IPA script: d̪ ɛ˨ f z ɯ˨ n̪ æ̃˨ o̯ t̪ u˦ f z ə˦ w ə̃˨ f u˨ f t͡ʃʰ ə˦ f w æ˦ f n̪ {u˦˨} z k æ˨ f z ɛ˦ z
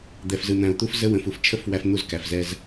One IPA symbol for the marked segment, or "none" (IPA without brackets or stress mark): u˦˨